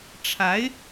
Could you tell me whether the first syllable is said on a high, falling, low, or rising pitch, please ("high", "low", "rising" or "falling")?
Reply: rising